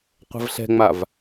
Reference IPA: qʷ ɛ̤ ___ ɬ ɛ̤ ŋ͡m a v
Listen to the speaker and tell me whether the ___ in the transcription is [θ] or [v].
v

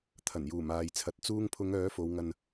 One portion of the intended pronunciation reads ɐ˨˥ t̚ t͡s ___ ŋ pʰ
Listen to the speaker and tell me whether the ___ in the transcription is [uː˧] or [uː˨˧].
uː˧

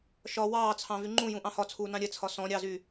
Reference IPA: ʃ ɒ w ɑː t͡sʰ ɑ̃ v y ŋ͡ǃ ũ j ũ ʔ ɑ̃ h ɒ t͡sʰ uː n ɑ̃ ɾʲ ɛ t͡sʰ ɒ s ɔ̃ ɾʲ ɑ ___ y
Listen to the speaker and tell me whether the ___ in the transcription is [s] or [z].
z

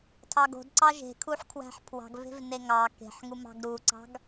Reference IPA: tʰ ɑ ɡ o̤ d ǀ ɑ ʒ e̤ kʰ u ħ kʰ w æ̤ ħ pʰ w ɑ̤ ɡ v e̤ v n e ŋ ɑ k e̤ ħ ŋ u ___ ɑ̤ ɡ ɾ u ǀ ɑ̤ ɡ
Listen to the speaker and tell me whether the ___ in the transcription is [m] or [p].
m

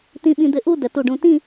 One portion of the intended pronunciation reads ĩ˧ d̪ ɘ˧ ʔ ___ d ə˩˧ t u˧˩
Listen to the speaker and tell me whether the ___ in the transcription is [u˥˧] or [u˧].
u˥˧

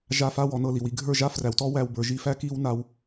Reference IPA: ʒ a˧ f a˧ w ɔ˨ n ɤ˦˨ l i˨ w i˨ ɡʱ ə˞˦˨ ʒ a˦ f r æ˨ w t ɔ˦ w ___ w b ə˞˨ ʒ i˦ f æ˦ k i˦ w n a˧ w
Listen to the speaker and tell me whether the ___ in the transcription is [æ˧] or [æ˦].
æ˧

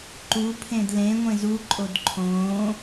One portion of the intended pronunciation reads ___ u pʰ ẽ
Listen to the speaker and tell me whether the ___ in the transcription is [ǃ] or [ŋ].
ǃ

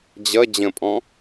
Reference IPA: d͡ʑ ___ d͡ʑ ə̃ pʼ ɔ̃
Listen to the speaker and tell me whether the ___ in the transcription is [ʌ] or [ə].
ʌ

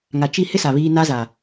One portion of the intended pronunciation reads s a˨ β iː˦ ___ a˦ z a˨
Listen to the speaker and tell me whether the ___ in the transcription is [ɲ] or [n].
n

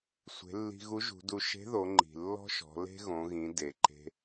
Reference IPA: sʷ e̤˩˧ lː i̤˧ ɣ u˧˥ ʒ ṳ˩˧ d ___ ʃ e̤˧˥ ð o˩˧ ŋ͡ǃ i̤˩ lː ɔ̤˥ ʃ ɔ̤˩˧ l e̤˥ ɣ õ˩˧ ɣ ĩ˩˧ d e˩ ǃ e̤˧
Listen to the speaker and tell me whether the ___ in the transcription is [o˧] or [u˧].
u˧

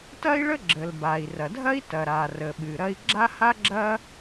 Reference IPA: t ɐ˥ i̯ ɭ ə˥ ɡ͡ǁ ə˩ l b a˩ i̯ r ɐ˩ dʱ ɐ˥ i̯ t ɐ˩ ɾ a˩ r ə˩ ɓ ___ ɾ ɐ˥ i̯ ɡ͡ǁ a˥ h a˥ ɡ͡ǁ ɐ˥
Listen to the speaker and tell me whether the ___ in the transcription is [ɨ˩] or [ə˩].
ɨ˩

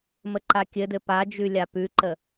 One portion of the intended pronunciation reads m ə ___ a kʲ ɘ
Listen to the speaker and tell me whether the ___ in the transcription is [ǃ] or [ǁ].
ǃ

